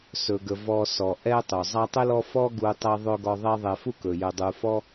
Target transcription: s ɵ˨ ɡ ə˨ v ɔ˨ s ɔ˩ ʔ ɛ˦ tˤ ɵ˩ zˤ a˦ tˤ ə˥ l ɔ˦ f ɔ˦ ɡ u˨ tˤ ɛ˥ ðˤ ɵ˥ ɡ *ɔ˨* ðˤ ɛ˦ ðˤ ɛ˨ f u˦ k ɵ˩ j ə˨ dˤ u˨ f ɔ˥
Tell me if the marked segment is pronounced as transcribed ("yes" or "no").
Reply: no